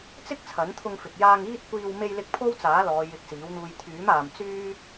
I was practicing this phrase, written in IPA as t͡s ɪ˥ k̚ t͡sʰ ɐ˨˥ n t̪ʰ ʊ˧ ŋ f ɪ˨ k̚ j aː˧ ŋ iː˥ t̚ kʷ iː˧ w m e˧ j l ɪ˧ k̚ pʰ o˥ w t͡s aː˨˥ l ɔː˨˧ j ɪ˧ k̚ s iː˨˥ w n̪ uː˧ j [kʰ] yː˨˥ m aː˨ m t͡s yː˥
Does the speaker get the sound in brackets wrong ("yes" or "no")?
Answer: yes